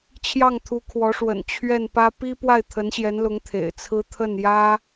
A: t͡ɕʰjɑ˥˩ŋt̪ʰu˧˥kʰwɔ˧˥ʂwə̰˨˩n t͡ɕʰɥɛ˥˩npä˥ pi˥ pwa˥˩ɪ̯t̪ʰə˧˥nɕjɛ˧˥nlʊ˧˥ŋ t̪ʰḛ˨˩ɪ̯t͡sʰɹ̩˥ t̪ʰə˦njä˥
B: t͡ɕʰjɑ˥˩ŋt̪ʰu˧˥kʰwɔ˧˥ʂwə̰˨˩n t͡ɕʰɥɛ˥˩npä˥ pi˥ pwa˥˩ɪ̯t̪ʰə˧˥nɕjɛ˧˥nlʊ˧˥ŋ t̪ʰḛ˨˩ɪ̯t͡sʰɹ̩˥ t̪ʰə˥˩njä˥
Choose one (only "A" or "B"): B